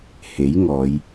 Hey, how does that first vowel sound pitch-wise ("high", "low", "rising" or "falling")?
rising